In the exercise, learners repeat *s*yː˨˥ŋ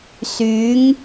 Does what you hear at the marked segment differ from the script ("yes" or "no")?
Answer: no